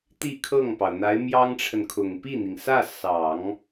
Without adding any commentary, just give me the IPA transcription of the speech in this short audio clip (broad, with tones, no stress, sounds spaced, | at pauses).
t̪ i˥˧ kʰ ɤ˥˩ ŋ p ɑ˩ ʊ̯ n̪ a˧˥ ɪ̯ m j ɑ˥ ŋ ʈ͡ʂʰ ə˨ n kʰ ʊ˨˩ ŋ p i˥˩ n̪ i˩ ŋ s ä˥˩ s ɑ˨˩˦ ŋ